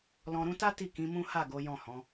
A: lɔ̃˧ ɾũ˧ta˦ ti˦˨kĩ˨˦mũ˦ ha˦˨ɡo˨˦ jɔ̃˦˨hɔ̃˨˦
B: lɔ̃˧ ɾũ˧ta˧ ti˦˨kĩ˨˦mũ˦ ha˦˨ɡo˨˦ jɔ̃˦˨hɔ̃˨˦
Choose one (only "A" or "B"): A